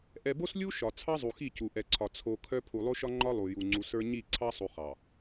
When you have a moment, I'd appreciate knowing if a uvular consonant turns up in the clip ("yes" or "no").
yes